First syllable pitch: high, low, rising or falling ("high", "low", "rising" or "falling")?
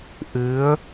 rising